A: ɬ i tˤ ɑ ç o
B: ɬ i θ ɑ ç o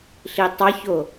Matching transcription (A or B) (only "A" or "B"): A